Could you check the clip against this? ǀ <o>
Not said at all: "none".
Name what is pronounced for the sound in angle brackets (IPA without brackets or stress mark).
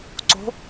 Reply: o̤